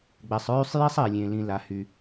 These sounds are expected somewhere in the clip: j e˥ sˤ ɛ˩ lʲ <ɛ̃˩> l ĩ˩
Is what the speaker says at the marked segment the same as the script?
no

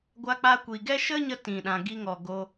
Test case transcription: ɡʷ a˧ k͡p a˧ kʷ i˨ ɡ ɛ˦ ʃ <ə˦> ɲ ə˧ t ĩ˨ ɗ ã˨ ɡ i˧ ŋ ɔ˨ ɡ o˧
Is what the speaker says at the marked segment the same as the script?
yes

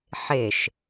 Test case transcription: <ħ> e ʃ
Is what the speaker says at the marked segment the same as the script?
yes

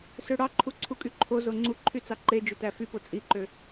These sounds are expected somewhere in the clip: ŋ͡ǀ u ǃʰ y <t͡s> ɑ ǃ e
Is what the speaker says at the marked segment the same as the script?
yes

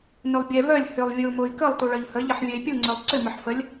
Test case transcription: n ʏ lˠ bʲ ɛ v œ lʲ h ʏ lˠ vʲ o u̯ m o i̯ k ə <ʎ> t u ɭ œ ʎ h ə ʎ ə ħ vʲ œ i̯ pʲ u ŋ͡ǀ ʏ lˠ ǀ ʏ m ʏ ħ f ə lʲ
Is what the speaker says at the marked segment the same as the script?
no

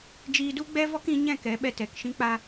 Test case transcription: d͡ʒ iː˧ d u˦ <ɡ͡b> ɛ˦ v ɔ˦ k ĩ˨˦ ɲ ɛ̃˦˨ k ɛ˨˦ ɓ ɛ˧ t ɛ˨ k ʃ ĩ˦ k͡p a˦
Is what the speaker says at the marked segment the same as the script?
yes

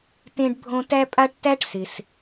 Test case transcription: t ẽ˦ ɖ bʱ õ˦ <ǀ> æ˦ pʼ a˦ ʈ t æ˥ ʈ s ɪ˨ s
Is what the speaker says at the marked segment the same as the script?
no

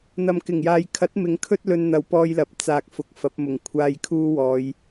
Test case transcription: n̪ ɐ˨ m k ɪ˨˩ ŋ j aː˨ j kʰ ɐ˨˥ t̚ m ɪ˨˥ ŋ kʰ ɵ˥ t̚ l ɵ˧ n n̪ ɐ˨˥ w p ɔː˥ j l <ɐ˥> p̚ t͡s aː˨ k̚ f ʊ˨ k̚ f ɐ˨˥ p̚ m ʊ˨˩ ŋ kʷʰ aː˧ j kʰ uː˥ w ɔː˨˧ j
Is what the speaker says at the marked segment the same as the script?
no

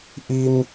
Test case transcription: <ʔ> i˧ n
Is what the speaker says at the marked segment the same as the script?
yes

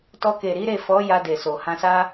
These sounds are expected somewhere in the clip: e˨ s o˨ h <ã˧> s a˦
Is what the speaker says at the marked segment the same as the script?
yes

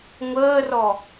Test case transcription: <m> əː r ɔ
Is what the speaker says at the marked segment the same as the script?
no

